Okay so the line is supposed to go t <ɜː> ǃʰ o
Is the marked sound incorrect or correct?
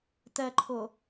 incorrect: ɜ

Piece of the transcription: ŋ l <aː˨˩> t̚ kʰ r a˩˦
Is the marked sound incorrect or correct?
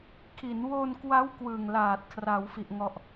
correct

